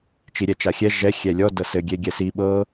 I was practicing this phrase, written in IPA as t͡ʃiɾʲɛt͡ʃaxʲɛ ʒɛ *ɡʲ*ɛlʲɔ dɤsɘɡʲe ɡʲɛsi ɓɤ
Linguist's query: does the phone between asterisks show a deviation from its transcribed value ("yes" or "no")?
yes